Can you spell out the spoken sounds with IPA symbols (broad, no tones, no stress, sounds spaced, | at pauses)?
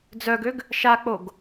d͡z œ ɡ ø ɡ | ʃ a k͡p o ɡ